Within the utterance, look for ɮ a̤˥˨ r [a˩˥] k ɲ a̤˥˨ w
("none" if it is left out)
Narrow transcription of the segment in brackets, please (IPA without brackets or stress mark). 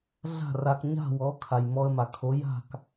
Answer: a˧